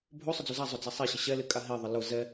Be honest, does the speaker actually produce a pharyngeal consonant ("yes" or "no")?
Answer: no